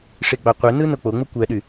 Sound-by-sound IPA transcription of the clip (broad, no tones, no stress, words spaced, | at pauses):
ʂeɡ͡bɑqʷenɯ nok͡poŋ͡mɯ kʷæɗy